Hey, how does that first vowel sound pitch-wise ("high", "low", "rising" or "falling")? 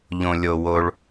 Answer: low